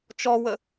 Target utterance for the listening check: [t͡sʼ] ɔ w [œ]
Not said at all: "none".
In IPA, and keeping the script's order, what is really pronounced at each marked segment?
t͡ʃ, ə

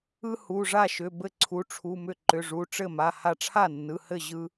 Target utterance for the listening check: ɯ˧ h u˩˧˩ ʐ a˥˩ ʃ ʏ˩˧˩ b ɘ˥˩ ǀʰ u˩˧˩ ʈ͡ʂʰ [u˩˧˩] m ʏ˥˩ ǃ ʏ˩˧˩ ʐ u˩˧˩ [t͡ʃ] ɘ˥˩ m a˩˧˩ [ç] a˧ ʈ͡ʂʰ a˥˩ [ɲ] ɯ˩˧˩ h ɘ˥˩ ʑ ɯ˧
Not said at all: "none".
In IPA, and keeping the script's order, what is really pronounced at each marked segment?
u˩˧˩, ʈ͡ʂ, h, nː

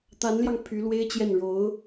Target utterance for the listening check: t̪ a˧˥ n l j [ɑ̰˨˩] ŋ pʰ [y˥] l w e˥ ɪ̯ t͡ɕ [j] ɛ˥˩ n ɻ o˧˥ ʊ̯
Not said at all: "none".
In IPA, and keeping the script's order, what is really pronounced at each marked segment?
ɑ˧, y˧˥, j

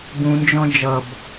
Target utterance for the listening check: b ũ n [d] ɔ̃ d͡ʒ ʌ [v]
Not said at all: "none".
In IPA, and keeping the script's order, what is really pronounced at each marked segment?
d͡ʒ, b

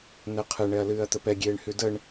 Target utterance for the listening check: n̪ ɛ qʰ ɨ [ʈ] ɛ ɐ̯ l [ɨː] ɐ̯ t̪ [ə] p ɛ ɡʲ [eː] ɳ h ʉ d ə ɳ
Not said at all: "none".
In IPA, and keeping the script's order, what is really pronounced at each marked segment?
ɳ, ɨː, ə, eː

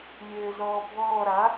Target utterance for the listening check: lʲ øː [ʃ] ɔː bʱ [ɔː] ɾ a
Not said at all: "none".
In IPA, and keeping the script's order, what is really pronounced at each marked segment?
z, ɔː

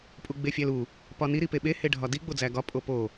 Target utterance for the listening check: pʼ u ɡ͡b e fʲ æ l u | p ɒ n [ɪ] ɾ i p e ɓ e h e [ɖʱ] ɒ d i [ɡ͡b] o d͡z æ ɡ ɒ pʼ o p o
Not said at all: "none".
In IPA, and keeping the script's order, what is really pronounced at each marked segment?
i, ɖʱ, ɡ͡b

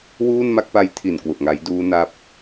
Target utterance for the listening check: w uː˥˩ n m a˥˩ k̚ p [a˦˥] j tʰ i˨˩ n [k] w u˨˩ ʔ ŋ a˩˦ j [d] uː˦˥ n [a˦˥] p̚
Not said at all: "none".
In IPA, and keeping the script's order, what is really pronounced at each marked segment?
a˦˥, k, d, a˦˥

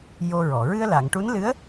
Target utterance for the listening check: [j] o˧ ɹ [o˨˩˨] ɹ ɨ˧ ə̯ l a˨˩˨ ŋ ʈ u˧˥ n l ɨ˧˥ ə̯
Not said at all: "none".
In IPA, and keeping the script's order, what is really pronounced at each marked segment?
j, ɔ˨˩˨

